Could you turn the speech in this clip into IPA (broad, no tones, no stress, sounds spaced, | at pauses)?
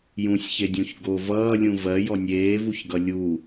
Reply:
j ũ sʲ ç e dʲ õ ç ɡ o v ʌː lʲ ũ v ɜ j ɔ nʲ eː v u ç ɡ ʌ lʲ u